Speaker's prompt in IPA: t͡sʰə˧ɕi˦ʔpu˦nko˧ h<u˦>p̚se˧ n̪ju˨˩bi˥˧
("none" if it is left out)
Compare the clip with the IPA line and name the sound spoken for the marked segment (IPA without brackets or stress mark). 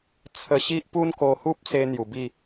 u˦